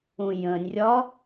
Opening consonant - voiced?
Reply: yes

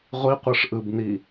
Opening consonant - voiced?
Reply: yes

